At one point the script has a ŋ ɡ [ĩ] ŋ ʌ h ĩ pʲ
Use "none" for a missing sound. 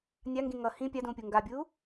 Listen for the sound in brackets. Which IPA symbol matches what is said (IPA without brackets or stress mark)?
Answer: ĩ